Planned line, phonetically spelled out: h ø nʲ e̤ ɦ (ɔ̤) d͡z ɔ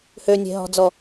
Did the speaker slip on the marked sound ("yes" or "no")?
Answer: no